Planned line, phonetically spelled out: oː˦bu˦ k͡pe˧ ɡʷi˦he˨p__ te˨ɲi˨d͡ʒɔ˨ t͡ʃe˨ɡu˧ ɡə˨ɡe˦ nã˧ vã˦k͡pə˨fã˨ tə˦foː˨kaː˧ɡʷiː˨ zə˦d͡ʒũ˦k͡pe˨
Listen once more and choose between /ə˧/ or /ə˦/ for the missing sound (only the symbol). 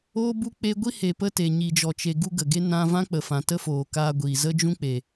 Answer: ə˧